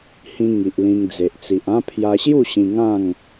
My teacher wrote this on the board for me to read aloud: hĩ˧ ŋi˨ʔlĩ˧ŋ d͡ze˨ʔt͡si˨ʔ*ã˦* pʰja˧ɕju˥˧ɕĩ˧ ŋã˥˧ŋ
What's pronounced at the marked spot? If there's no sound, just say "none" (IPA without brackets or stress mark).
ã˦